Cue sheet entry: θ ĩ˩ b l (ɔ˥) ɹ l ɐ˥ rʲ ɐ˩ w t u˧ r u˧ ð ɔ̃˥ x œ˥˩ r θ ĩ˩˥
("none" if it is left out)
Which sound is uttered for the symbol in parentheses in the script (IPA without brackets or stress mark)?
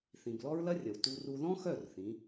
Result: ɔ˥